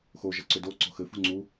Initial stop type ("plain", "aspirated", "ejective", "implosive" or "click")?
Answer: click